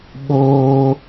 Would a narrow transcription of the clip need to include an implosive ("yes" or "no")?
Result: yes